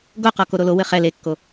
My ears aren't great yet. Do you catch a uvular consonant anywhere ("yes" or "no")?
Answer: yes